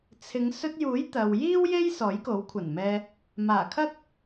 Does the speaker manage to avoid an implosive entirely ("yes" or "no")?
yes